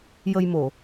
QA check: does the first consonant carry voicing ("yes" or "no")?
yes